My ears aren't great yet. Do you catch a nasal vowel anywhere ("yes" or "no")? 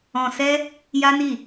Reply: yes